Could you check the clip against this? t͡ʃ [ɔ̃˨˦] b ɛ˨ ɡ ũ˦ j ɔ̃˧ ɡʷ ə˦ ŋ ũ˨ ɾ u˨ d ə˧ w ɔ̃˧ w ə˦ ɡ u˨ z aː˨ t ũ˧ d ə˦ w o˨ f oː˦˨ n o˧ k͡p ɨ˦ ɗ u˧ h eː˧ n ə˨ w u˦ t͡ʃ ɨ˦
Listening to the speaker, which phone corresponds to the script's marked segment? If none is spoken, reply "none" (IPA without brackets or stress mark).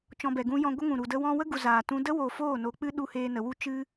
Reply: ɔ̃˧